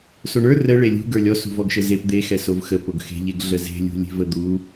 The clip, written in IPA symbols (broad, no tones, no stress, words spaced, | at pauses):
soɳə˞ rə ɭelʲṳ ɡə˞lʲɔ sṳvɔɡʃəzep d̪e xɛsovxə poɡxe̤ ʎeɡɮəze̤ lʲṳlʲe̤vəd̪u